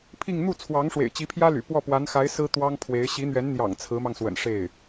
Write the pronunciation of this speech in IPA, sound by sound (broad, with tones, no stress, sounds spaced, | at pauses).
pʰ i˥˧ ŋ n̪ u˥˩ t͡sʰ w ɑ˧˥ ŋ ʂ w ḛ˨˩ ɪ̯ t͡ɕ i˧˥ pʰ j ä˥ l y̰˨˩ p w ɔ˥˩ p w a˧˥ n x a˧˥ ɪ̯ s ɹ̩˥ t̪ w ɑ˥ ŋ pʰ w e˧˥ ɪ̯ ɕ i˧˥ n̪ ɥ ɛ˧˥ n n̪ j ɑ̰˨˩ ŋ t͡sʰ ɹ̩˧˥ m ɑ˧ ŋ s w ə̰˨˩ n ʂ e˥˩ ɪ̯